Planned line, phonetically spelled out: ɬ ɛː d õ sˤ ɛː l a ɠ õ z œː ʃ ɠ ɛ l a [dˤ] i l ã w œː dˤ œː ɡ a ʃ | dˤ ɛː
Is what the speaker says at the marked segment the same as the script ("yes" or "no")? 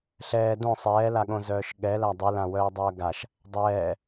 yes